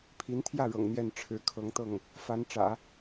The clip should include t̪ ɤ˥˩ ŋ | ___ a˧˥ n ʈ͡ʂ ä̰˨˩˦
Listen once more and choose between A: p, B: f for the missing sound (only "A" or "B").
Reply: B